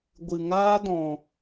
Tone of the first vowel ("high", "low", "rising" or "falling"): low